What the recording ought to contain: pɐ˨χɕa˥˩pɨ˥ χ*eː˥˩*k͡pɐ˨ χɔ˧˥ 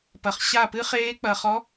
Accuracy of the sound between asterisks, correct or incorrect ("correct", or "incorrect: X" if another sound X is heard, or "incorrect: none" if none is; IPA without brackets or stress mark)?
incorrect: eː˧˥